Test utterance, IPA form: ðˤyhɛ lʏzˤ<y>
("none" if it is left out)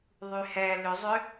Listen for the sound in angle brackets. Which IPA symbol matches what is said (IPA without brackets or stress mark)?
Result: ʏ